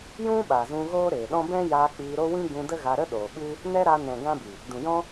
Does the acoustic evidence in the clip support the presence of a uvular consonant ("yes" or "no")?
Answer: no